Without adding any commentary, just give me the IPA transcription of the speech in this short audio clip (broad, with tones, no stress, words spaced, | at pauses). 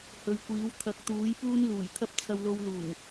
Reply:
hɵ˨ɥkʷiː˨˥w t̪ʰɐ˨˥k̚t̪uː˨˥jpuː˥n luː˨˩jt̪ʰɐ˥p̚ t͡sʰɐ˧wlo˧wluː˨˩ŋ